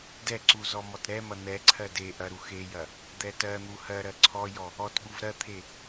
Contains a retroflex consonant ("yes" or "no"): no